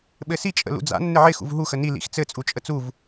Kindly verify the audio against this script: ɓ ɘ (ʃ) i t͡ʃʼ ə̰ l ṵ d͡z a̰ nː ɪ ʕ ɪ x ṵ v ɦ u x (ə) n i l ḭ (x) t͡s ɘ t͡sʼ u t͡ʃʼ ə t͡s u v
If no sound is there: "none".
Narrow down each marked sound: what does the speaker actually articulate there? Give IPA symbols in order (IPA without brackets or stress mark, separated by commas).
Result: s, ə, x